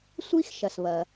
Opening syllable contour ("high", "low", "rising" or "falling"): high